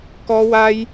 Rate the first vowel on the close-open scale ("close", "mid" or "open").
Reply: mid